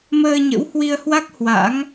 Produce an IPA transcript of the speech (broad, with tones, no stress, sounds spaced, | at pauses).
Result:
m əː˧ ɲ ə̰˧˥ w h w i˧ ə̯ h w a˦˥ k̚ h w a̰˧˥ ŋ